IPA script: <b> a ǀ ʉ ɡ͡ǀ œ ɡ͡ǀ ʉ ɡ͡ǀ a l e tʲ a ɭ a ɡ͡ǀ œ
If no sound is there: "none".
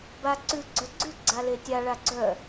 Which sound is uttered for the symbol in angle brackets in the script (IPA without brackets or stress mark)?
b